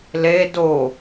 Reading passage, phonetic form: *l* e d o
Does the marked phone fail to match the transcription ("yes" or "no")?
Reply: no